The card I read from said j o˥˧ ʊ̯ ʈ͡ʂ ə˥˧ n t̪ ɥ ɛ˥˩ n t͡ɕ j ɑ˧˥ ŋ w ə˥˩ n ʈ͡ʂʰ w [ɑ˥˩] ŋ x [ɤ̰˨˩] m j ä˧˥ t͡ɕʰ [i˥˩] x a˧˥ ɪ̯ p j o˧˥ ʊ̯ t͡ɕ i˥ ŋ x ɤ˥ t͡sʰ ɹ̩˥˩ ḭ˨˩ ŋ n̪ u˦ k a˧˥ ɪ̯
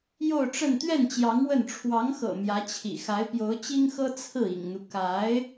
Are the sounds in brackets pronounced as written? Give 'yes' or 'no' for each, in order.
no, yes, no

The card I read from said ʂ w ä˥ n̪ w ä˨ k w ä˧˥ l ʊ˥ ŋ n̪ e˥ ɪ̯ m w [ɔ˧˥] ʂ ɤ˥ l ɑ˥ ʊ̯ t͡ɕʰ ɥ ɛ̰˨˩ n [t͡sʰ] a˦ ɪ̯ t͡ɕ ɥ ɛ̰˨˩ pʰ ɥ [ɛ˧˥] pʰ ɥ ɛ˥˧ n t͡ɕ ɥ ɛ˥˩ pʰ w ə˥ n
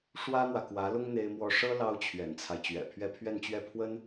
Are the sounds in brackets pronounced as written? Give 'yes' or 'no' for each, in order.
no, yes, no

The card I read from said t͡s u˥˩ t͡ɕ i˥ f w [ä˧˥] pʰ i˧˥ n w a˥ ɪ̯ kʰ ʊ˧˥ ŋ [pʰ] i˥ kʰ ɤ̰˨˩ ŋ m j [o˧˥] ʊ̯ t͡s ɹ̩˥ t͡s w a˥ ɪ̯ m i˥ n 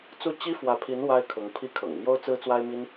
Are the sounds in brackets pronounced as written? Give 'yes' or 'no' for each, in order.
yes, yes, no

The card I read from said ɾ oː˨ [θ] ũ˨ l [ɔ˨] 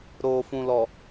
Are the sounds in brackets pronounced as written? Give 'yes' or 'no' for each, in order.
no, yes

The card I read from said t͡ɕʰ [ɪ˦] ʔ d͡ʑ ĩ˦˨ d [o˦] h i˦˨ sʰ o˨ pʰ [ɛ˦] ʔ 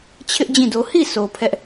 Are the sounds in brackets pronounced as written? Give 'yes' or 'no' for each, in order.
yes, yes, yes

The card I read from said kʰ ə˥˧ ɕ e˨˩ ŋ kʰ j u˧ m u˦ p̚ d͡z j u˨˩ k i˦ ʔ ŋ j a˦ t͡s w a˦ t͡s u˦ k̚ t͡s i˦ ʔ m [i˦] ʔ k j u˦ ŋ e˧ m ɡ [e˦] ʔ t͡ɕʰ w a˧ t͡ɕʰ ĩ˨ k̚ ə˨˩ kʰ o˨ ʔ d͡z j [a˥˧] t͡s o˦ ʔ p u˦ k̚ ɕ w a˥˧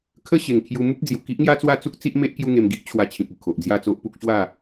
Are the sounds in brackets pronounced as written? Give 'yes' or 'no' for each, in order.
no, no, yes

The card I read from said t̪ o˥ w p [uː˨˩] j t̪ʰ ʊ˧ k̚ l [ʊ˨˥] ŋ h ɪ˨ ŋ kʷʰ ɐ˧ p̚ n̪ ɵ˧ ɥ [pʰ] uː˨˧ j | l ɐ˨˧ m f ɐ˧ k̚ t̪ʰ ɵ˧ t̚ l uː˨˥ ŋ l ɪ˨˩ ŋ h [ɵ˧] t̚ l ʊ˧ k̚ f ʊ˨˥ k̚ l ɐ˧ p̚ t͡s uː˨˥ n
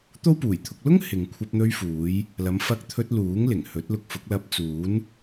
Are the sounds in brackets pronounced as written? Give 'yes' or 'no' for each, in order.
yes, no, no, no

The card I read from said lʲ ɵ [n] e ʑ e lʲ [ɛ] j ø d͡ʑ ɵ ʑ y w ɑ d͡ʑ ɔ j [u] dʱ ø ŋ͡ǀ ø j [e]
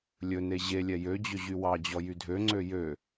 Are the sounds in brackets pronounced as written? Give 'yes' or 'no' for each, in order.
yes, yes, no, no

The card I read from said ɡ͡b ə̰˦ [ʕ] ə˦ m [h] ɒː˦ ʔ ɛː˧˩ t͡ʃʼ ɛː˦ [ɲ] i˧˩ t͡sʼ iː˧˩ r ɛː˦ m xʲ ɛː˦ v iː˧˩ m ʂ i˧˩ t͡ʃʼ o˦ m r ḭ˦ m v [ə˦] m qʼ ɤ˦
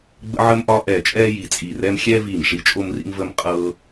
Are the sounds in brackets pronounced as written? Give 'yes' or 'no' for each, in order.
yes, no, no, yes

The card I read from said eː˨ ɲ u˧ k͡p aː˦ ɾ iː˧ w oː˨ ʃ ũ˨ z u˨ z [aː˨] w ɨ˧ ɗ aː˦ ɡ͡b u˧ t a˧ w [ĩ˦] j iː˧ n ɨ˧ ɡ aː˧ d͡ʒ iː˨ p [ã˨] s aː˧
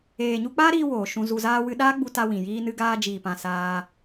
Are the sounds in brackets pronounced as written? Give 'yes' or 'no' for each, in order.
no, no, yes

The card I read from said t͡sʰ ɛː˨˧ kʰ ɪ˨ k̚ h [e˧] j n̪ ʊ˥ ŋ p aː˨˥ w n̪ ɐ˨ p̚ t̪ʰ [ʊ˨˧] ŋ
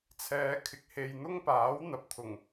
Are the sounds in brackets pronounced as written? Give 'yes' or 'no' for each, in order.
yes, no

